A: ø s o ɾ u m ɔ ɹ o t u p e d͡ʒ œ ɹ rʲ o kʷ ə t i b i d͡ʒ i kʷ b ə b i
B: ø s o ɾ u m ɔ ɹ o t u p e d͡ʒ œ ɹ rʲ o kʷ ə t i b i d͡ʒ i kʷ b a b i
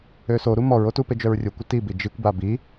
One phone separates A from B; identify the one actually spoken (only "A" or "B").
B